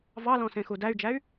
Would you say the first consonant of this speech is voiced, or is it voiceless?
voiced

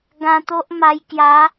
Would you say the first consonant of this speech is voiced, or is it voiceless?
voiced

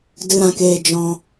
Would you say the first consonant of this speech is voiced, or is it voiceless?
voiced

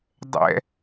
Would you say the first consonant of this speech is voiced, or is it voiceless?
voiced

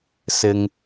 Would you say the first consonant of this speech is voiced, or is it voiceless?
voiceless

